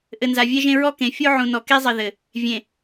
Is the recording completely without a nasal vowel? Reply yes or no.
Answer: no